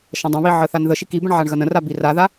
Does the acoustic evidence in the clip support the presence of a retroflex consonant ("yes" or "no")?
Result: yes